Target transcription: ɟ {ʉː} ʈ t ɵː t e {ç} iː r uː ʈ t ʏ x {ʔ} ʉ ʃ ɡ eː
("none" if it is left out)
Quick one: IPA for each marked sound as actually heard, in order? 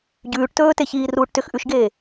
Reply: ʉː, ç, ʔ

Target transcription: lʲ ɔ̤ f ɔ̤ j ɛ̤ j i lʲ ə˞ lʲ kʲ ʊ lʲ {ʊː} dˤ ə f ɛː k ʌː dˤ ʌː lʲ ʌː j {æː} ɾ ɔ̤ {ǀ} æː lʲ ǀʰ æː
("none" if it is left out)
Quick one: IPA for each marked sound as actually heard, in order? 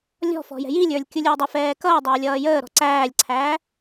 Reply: ʊː, əː, ǀ

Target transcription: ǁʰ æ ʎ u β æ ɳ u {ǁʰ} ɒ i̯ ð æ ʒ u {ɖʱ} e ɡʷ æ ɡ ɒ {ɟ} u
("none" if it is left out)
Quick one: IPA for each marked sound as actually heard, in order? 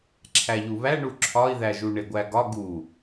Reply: ǁʰ, ɳ, ɡ

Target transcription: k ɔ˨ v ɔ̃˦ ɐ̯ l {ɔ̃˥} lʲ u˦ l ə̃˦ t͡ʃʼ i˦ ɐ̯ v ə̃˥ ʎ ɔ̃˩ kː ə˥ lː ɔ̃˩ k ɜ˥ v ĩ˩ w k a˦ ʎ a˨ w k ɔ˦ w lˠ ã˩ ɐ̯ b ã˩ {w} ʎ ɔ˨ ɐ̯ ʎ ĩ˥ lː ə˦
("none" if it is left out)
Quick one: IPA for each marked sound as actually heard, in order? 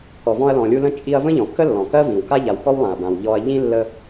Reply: ɔ̃˨, w

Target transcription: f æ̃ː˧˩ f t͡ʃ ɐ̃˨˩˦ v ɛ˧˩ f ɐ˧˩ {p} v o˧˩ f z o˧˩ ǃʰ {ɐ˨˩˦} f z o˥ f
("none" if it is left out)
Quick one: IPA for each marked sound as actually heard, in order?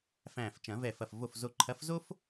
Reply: f, ɐ˨˥

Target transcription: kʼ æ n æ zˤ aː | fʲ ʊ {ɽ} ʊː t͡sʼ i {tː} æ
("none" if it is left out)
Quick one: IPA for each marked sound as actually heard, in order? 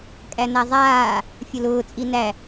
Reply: l, n

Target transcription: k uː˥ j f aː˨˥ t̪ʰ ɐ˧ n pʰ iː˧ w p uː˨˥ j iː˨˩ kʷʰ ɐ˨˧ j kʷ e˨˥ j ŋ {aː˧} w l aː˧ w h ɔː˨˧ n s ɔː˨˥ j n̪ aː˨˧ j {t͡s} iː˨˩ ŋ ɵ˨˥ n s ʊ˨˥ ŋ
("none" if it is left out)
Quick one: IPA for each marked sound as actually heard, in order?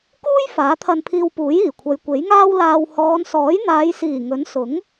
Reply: aː˥, s

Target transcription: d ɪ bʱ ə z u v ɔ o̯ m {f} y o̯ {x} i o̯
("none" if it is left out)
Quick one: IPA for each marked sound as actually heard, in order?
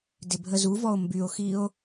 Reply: b, x

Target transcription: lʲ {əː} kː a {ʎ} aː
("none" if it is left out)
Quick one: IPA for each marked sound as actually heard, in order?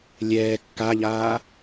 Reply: ɛː, ʎ

